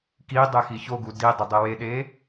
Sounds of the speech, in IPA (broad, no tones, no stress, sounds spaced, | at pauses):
k i dˤ e x i ç o ɡ u d i dˤ i dˤ i w e ɗ e